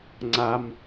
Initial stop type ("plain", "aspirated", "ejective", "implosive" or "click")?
click